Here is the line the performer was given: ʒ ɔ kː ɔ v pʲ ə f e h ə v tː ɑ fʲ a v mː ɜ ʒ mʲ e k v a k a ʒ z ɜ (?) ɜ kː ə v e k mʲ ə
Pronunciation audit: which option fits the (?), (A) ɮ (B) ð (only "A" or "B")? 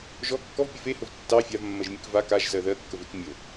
B